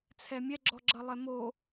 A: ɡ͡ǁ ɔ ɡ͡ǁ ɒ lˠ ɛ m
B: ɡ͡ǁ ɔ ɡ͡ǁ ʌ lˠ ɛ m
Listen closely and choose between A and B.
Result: B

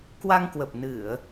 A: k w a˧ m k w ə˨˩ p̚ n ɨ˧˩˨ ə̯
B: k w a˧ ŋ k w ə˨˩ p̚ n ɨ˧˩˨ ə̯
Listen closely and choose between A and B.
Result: B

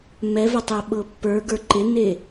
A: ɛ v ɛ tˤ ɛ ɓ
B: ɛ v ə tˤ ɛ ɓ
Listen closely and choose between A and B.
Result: B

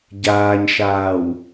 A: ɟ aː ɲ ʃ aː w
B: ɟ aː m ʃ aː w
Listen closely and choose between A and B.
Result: A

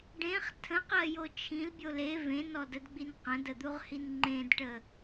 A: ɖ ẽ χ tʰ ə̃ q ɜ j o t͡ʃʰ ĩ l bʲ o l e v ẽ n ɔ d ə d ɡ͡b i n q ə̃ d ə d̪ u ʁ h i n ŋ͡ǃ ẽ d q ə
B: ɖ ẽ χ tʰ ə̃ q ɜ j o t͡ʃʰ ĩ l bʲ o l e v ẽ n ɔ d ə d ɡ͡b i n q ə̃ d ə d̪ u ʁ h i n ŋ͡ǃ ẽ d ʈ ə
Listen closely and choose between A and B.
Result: B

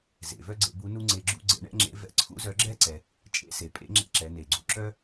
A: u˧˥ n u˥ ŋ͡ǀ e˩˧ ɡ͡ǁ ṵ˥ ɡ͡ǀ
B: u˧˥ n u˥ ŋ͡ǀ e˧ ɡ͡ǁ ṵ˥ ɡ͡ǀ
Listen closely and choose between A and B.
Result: B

